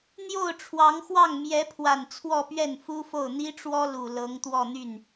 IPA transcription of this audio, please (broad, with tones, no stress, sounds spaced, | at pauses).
n̪ j o˥˩ ʊ̯ ʈ͡ʂʰ w ɑ˧˥ ŋ x w ɑ˥˩ ŋ m j ɛ˧˥ pʰ w a˨˩ n t͡sʰ w ɔ˥˧ p ɥ ɛ˥˩ n f u˥ f o˥˩ ʊ̯ n̪ i˥ ʈ͡ʂ w ɔ˥ l u˨˩ l ɤ˧˥ ŋ t̪ w ɔ˥˧ n̪ y˥˩ n